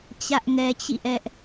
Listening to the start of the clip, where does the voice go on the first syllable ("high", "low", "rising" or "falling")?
high